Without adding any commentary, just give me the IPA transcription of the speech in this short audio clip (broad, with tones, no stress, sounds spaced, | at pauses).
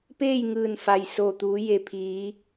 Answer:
p eː˥˨ j ŋ ɯː˧˩ n f a˩ j s o˧˩ t̪ uː˩˧ j e˩ pʰ iː˩˧